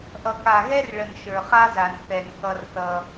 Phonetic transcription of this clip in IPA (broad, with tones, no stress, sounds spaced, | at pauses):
ʔ ʌ˨ k a˨ ɣ ɛ˦ r ɭ ə˨ n ʃ ə˞˨ χ a˦ z a˨ n θ ɛ˨ n k ʌ˦ r θ ʌ˦